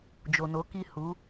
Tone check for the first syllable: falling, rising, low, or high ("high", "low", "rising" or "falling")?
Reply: low